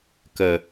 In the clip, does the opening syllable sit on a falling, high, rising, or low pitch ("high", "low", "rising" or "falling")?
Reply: low